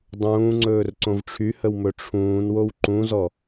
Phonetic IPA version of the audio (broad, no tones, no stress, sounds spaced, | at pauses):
dˤ ũː ŋ͡ǀ ɵː r ǀ õ v ʈ͡ʂʰ y h ə w m ɵ ʈ͡ʂʰ ũː n w o w ǃ ũ z ɔ